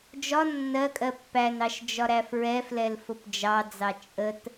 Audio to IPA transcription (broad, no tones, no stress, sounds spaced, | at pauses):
d͡ʒ ɒ nː ɜ kʼ ɜ pː æ n ɑ ʃ d͡ʒ ɒ ɾ æ f ɹ ɛ f l ɛ l f ʊ p d͡ʒ ɑ d͡z ɑ t͡ʃʼ ə t